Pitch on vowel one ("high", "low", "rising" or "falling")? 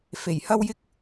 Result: low